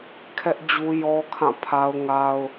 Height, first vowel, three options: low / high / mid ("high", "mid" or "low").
mid